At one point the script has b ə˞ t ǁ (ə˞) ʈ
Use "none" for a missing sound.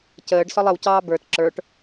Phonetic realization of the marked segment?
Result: ə˞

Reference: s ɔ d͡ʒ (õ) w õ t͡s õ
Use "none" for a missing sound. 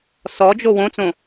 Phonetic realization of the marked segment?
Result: o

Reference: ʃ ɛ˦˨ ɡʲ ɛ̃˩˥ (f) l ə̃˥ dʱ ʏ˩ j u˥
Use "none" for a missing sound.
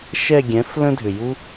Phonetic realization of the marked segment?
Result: f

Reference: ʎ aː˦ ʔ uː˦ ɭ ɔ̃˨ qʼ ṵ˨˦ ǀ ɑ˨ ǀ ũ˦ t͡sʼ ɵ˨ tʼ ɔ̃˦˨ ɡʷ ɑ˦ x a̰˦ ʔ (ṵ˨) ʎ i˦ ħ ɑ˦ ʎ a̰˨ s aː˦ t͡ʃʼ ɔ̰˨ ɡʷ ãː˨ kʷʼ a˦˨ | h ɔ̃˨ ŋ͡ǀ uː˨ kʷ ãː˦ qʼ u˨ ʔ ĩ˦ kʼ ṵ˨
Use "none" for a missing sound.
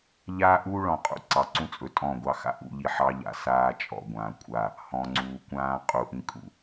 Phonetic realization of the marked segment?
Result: ṵ˦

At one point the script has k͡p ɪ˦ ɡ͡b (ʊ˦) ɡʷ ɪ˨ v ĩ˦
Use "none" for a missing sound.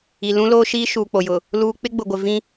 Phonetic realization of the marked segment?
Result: ʊ˨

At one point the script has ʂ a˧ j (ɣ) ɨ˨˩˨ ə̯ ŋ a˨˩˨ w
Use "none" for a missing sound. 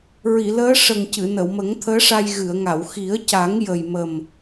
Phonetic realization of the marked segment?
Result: ɣ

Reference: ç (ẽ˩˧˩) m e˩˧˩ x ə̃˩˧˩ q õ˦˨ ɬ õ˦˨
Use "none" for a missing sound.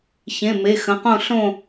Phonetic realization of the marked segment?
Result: ẽ˩˧˩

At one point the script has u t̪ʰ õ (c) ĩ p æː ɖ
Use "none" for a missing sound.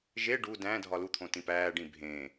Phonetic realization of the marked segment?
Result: t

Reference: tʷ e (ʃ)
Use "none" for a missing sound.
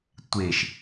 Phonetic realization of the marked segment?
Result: ʃ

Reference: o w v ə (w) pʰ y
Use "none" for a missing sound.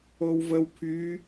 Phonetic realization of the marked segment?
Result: w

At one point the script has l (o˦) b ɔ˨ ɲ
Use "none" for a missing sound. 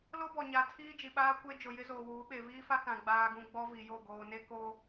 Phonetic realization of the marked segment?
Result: o˦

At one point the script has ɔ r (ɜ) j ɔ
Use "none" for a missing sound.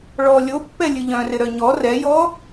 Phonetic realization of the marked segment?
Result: ɛ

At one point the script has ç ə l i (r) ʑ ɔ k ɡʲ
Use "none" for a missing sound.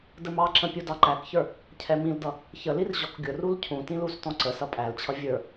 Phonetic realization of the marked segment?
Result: r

